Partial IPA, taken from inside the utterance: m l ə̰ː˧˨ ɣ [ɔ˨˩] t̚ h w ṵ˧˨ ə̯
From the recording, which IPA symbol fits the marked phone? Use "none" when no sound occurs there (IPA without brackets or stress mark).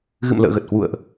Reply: ə˨˩